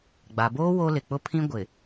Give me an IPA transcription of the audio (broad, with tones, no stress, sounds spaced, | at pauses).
ɡ͡b a˨ b oː˦ w o˦ l ɪ˨ k͡p ʊ˦ pʰ ĩ˦ ɡʷ ɪ˨